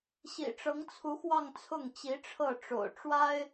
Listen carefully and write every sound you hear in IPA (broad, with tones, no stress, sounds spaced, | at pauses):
ɕ ḭ˨˩ ʈ͡ʂ ɤ˧˥ ŋ t͡sʰ u˧˥ x w ɑ˥˧ ŋ t͡sʰ ʊ˥˩ ŋ t͡ɕ i˧˥ ʈ͡ʂʰ ɤ˥˩ ʈ͡ʂ o̰˨˩ ʊ̯ ʈ͡ʂ w a˥ ɪ̯